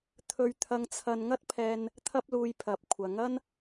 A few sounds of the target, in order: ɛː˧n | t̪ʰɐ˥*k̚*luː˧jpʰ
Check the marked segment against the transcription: incorrect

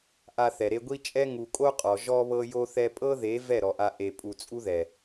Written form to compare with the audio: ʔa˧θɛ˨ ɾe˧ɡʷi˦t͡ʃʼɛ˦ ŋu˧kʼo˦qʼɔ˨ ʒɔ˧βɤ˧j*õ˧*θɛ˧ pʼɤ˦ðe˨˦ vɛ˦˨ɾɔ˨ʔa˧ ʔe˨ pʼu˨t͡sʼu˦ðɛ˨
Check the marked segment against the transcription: incorrect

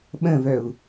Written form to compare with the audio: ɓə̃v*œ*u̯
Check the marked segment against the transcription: correct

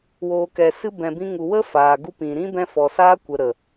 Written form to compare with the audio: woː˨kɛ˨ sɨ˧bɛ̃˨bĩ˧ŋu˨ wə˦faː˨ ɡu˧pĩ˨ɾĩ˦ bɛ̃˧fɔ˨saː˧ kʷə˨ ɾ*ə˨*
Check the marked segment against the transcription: correct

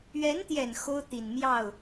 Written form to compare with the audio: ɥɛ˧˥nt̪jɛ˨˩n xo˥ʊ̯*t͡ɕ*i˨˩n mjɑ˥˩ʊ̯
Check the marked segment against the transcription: incorrect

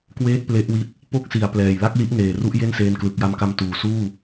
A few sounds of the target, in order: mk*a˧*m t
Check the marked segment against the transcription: correct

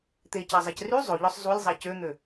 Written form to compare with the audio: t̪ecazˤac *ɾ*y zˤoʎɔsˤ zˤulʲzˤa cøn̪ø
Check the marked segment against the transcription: incorrect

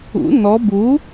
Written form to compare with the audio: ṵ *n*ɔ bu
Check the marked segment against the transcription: correct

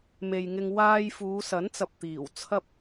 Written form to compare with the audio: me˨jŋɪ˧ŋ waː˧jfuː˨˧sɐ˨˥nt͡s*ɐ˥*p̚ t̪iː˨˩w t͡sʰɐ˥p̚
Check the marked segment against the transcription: incorrect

